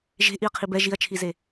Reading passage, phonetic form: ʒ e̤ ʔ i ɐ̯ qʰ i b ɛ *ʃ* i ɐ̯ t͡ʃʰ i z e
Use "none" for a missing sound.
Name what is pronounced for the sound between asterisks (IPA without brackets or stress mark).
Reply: ʒ